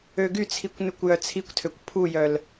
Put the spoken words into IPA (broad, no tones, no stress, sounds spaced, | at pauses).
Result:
ø ɡ y t͡sʰ i kʷ n ʉ kʷ j œ t͡sʰ i kʷ tʰ ø kʷ pʰ u j œ l